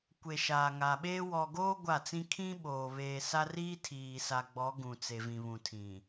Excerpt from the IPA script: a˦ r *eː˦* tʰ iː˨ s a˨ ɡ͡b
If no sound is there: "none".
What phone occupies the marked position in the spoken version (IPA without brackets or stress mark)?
iː˦